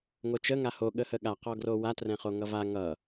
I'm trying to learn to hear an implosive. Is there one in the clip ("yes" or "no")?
yes